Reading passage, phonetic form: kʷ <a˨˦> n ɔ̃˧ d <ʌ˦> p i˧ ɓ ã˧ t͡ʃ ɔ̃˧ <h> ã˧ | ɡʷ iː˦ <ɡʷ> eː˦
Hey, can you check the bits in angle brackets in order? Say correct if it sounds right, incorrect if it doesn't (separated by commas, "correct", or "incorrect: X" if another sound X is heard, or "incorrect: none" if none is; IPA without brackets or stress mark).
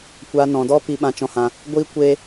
incorrect: a˧, incorrect: ɔ˦, correct, incorrect: kʷ